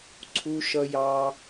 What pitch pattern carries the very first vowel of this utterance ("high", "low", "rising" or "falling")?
low